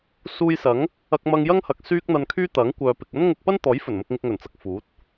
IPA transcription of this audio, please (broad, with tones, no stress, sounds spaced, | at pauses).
s uː˧ j s ɐ˨˥ ŋ | ɐ˧ k̚ m ɐ˧ ŋ j ɐ˥ ŋ h ɐ˨ k̚ s yː˥ k̚ n̪ ɐ˧ n kʰ yː˥ t̪ ɐ˨˥ ŋ kʷ œː˨ p ɪ˨ k̚ ɐ˥ n ŋ ʊ˧ k̚ p ɐ˥ n t̪ ɔː˨˥ j f ɵ˨˩ n m ʊ˧ k̚ ŋ ɪ˧ k̚ ŋ ɵ˨˩ n t͡s ɐ˨ k̚ f uː˨˥ t̚